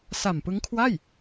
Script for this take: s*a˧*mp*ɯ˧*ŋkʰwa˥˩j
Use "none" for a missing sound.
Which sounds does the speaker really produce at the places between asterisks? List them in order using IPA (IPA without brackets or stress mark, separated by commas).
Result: a˨˩, ɯ˦˥